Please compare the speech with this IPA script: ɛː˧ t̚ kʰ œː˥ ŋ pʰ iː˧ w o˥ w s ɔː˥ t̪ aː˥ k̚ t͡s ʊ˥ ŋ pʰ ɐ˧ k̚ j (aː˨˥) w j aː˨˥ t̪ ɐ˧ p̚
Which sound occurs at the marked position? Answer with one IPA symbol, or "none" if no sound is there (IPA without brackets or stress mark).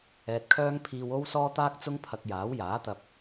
aː˨˥